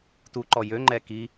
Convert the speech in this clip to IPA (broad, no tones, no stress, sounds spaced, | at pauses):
t u ǃ ɔ j ø ŋ͡ǃ ɛ k i